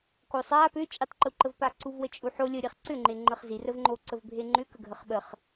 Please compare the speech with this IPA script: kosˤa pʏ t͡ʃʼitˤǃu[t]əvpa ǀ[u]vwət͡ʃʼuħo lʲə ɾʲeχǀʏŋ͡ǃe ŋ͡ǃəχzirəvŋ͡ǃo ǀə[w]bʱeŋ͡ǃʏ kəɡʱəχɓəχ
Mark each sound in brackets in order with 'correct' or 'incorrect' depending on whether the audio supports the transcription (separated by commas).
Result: incorrect, correct, incorrect